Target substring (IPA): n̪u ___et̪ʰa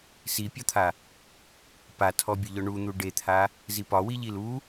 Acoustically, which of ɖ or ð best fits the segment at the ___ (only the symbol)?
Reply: ɖ